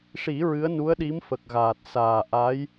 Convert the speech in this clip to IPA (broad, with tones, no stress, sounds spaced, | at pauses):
ʂ i˨˩˦ ɹ ɨ˧˥ ə̯ n u˧˥ ə̯ ɗ i˧˥ m f ə˨˩ k̚ ɣ aː˨˩ t̚ s aː˨˩ ʔ a˧˥ j